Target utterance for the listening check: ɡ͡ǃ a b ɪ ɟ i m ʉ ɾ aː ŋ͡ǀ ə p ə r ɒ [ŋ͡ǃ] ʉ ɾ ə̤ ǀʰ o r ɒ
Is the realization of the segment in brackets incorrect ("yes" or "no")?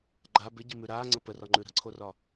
no